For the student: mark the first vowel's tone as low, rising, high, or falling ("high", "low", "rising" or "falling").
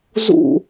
falling